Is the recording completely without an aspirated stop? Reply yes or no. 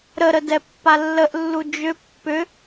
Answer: yes